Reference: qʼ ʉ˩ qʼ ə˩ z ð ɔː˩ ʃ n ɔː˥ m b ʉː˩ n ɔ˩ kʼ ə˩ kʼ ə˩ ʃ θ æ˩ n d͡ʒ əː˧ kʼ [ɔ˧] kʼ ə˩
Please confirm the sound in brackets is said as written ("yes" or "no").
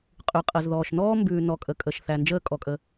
no